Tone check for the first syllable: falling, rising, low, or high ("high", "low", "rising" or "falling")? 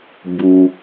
low